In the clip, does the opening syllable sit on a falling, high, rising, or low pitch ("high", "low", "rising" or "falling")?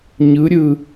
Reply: rising